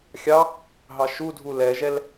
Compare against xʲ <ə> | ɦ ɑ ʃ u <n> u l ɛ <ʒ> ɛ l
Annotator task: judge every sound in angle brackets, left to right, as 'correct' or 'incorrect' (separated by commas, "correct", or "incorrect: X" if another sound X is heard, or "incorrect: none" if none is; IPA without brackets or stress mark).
incorrect: ɑ, incorrect: dʱ, correct